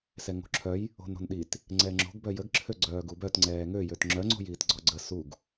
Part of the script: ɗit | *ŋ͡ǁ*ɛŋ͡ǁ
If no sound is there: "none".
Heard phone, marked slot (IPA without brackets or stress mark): ŋ͡ǀ